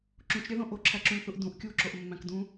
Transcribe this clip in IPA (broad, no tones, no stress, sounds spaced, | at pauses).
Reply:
ǁ ũ t͡ʃ ɾʲ æ ð õ ʔ o ǁʰ æ ǁ ũ lʲ θ u ʔ d ũ ʔ kʲ u ǁ o ʔ mː æ̃ k d ũ